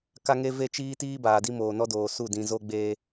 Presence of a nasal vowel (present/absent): present